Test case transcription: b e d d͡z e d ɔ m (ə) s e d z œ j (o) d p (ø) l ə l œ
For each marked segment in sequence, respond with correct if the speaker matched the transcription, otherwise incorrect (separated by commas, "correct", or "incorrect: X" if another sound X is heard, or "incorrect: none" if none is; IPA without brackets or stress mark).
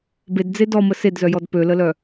correct, incorrect: ɔ, correct